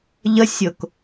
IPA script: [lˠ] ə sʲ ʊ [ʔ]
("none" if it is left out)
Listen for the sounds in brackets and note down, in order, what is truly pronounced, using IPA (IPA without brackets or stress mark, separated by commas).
ʎ, k